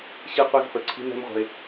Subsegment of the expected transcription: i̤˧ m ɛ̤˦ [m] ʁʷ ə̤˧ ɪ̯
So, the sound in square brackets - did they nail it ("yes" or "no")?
yes